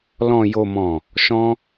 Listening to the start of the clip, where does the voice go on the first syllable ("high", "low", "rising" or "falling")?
low